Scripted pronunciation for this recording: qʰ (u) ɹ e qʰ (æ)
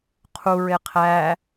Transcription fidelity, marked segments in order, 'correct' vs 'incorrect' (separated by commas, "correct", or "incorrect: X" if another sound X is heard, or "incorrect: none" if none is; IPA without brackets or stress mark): correct, correct